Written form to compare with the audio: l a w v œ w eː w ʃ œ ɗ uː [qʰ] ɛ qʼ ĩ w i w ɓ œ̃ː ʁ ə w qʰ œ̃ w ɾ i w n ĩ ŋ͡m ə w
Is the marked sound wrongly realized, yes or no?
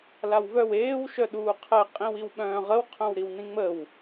no